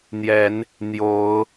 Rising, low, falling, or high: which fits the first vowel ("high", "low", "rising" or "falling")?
rising